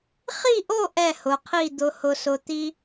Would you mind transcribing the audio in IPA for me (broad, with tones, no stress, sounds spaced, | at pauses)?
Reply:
χ i˥˧ ʔ o˥˧ ʔ ɛ˥˧ h ʊ˩˧ qʰ i˥˧ d̪ ʊ˧ h ʊ˧ s ʊ˧ t̪ i˥